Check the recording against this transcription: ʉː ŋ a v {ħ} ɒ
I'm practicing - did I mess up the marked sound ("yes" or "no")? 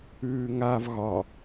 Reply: yes